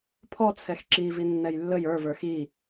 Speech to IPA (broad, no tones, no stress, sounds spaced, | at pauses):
pʰ ɔ t͡sʰ ɛ x ǁ i v i nː ɛ j lː ə j ə˞ v ə˞ x i